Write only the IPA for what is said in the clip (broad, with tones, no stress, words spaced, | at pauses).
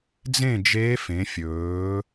d͡zẽ˥˨d͡ʒeː˧˥f ẽ˩˧fʲɵː˩˧